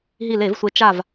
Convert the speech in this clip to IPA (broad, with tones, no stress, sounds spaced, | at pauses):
ɦ i˧˩ l e˧˩˧ v sʷ e˨˦ t͡ʃ a˧˩ v